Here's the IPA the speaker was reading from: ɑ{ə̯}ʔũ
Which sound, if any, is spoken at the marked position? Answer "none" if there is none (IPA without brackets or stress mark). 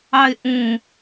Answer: ɪ̯